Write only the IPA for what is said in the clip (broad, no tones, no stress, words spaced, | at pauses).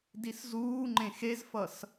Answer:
diszuːŋ͡ǃẽ xezfʌs